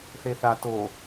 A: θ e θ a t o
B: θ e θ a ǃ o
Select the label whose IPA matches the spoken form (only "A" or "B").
A